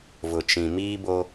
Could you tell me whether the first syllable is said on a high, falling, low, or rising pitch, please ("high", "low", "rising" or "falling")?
low